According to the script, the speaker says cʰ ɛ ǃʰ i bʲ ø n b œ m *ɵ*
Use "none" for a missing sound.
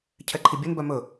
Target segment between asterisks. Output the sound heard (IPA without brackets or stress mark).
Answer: ɵ